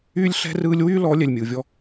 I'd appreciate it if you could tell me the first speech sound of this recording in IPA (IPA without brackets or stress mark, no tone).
yː